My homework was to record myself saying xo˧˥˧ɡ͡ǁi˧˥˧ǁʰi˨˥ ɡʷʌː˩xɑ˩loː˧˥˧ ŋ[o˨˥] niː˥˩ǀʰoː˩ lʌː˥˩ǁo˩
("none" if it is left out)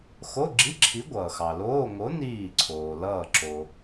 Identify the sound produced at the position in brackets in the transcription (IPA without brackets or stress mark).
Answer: o˨˥